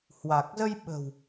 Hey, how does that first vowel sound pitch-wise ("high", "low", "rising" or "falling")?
low